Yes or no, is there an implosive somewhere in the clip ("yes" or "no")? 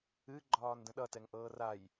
yes